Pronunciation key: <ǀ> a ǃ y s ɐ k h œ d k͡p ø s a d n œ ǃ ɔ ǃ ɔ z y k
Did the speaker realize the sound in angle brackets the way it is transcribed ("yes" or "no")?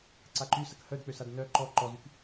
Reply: yes